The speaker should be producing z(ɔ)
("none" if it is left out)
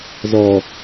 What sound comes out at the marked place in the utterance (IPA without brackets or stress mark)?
ɔ